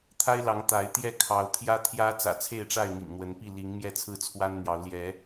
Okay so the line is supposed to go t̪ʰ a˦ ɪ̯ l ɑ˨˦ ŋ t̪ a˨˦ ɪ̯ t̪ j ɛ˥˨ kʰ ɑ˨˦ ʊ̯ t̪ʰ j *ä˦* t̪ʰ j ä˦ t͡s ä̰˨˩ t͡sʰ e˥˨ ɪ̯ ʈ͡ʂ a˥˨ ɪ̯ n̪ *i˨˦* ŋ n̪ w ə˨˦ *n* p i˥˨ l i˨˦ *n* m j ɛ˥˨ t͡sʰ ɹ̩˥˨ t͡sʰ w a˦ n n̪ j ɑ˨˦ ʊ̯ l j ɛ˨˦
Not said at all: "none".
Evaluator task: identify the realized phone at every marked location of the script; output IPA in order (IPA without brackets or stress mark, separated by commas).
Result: ä˦, ḭ˨˩, n, ŋ